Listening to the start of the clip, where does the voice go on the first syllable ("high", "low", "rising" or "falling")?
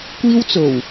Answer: high